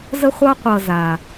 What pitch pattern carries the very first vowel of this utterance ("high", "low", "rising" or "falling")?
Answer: high